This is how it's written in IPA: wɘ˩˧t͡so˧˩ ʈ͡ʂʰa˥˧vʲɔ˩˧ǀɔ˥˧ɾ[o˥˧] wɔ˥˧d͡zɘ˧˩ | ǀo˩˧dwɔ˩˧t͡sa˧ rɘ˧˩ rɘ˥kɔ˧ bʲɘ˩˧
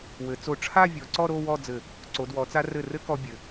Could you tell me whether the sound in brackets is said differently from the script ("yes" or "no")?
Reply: no